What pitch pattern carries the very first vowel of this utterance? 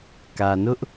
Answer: low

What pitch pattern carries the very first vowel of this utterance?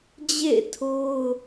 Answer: falling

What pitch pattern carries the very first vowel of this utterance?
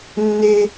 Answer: high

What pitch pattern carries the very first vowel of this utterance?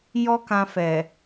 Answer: high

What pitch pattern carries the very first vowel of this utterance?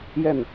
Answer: falling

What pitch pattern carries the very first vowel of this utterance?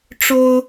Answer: high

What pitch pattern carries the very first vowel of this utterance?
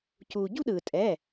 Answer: low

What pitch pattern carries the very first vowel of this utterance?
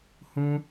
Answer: high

